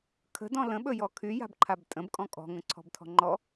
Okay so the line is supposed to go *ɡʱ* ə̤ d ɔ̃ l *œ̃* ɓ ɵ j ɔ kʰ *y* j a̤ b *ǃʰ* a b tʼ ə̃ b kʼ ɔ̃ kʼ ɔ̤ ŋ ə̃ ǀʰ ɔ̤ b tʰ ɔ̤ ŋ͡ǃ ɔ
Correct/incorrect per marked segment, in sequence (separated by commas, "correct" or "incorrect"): incorrect, incorrect, correct, correct